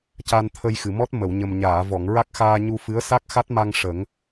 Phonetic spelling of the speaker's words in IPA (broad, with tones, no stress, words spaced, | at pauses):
ca˧nt̪ʰə˧jxɨ˨˩˨mɔ˦˥t̚ mə˨˩˨wɲə˨˩mɲaː˨˩˨vɔ˨˩˨ŋ ɹa˦˥k̚xaː˧ɲu˧fɨ˧˥ə̯ sa˦˥k̚xa˦˥t̚ma˧ŋ ʂə˨˩˦ŋ